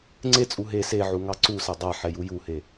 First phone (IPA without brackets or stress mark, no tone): ŋ͡ǀ